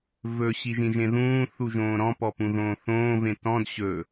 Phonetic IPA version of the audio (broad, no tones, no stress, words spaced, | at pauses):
vɵ ɕiʒĩʒẽðũː θuʒõːɾɔ̃ pɔpũðõːθõː vẽtɔ̃d ɕɵ